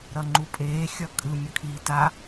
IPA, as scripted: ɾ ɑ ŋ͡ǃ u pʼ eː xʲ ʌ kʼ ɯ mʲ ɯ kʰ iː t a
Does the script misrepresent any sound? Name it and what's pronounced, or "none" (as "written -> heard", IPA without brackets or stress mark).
ɑ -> ʌ